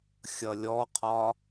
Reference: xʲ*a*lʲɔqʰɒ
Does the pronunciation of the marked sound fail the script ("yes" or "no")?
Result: yes